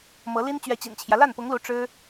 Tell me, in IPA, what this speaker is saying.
m ɤ˧˥ l i˥ n t͡ɕ ɥ ɛ˧˥ t͡ɕ ḭ˨˩ n t͡ɕʰ j ä˦ l a˥˩ n p ʊ˧˥ ŋ l u˧˥ ʈ͡ʂ ɻ̩˥

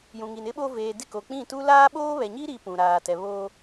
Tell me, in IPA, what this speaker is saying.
j ũ˨ ŋ i˨ n ɪ˦ ɓ o˦ v eː˨ d ɪ˦˨ k o˨ k͡p ĩ˦˨ t u˦ l aː˦ ɓ oː˦ β ɛ˨ ɲ i˦ ɾ i˦ p ũ˨ ɾ aː˨ t ɛ˨ β oː˦

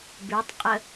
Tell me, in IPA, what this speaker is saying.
b ʉ tˤ qʼ ə

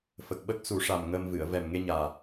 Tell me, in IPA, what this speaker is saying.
f ə˨˩ k̚ ɓ ə˦˥ k̚ s u˨˩˦ ʂ a˨˩ m ŋ əː˧ m v ɨ˨˩˨ ə̯ v ɛ˨˩ m ŋ e˧ ɲ aː˨˩

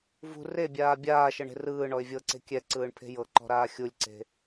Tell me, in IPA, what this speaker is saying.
v ṳ r e bʲ aː bʲ aː ʃ ɤ ɳ e̤ r ɯː ɳ ɔ ɪ̯ vʲ ɤ ǀ e̤ kʲ ɛ ǀ ɯː ɳ pʰ e̤ j ɤ ǃ ɔ̤ ɾ aː xʲ u lʲ ǀ e̤

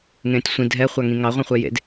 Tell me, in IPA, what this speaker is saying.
ŋ ẽː tʲ sʷ ĩ dʱ ɛ χʷ a ŋ ĩ ŋ ɑ ʁʷ ĩ χʷ e j ḛ d

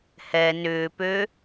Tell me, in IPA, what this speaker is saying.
h ɛ n ʏː p ø

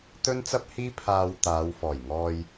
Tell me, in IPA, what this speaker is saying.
t̪ ɵ˥ n t͡s ɐ˥ p̚ h iː˥ pʰ aː˧ w t̪ aː˨˧ w f ɔː˨˩ j ŋ ɔː˧ j

